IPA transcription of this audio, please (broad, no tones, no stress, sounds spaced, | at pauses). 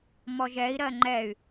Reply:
m ɔ ʒ ɛ i̯ ɾ ɜ ŋ͡ǃ ɛ y̯